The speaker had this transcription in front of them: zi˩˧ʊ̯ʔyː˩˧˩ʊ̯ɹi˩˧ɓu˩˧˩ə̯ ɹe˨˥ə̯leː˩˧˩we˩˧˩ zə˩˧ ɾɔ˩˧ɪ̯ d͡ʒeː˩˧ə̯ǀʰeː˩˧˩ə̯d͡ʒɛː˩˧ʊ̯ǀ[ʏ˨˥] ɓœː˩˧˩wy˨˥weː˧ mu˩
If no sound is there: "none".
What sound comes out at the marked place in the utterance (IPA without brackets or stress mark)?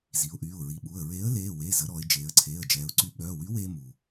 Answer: y˨˥